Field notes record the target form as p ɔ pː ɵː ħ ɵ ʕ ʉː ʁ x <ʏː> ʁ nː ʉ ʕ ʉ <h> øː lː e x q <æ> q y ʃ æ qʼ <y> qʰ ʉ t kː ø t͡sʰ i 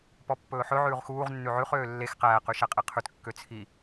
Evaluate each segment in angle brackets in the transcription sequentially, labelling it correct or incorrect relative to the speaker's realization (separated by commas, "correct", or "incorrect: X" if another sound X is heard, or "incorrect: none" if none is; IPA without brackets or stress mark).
incorrect: uː, incorrect: χ, incorrect: æː, incorrect: e